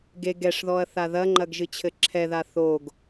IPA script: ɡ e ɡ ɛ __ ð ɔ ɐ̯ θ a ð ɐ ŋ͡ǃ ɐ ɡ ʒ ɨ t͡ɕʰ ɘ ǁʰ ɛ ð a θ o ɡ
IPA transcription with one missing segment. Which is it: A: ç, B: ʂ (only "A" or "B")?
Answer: B